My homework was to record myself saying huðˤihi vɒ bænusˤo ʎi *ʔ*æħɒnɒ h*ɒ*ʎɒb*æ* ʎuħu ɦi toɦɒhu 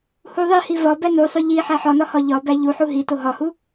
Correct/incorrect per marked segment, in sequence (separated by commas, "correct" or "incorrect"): incorrect, correct, correct